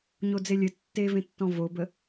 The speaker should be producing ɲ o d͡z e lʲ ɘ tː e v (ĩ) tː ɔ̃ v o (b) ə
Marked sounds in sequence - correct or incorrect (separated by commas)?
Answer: incorrect, correct